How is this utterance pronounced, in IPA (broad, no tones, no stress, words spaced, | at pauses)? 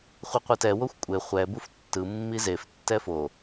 χʷiqʷɯtɛ woxʷkʷʼe χʷɛ buftːɯ mːizef tːɛfo